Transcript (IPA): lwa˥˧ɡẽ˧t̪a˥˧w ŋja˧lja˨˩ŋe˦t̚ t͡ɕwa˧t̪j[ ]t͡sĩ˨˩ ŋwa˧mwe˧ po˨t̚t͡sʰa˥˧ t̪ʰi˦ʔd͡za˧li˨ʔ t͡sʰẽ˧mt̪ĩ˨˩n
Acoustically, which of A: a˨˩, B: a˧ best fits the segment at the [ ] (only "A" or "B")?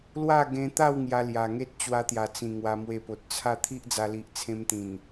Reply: A